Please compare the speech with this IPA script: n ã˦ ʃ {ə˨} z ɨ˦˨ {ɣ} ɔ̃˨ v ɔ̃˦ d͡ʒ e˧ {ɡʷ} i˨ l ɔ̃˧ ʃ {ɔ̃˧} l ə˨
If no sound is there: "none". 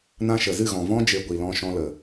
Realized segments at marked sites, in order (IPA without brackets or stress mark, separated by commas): ə˨, ɣ, ɡʷ, ɔ̃˧